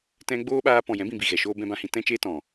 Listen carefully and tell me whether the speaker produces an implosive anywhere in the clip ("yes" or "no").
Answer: yes